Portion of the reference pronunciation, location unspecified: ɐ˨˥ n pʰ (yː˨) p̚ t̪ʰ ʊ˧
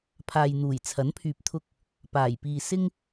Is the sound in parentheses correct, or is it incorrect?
correct